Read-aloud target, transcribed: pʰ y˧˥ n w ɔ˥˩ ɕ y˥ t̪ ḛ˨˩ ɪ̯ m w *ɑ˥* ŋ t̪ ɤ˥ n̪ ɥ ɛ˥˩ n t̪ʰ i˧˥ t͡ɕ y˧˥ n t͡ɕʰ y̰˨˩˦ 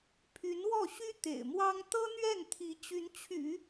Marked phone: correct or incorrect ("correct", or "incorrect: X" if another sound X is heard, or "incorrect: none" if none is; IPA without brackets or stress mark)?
correct